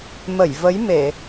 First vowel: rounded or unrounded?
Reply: unrounded